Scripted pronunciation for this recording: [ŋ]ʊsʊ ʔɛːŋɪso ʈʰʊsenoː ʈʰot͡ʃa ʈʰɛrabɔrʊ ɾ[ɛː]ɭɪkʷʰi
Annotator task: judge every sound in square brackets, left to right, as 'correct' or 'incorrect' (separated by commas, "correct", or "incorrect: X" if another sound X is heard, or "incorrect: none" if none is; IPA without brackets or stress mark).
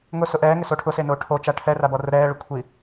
correct, correct